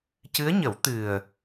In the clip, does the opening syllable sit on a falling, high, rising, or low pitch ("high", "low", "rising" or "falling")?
rising